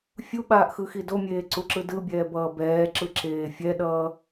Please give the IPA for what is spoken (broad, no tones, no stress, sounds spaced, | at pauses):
fʲ u ɓ aː ʔ x ɯ x i d o mʲ eː ǀ u ǁ ɯ d ɯ bʲ ɛː b ʌː b ɛː ǁ ɯ ǁ eː fʲ ɛ ɗ ʌː